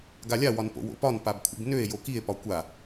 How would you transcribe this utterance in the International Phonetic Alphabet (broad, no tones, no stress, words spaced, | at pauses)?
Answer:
ɡalʲa wɒnpo̰wo̰pɒn pabkʷʰḭbnøe̯ jokie̯ pɒkʷa